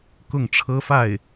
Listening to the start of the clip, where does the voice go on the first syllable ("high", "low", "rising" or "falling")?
falling